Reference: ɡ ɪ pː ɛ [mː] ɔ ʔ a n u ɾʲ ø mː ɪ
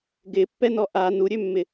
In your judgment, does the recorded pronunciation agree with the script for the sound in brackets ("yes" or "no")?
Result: no